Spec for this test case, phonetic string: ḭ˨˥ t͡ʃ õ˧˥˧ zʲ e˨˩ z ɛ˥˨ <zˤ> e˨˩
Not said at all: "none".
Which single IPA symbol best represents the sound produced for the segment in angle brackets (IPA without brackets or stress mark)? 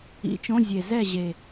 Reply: ʑ